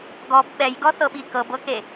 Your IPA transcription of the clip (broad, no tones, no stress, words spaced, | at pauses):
ɡɔb ɓɛjɡɔθɤɓi kɤbɤke